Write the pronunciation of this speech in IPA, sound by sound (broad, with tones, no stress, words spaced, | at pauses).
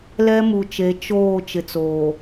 lɛ˦mu˨t͡ʃe˨˦ t͡ʃoː˦˨ t͡ʃɪ˨t͡soː˨